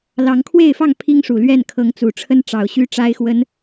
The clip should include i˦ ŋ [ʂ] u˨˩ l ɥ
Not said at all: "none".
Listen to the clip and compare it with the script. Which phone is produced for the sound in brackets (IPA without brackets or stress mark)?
ʂ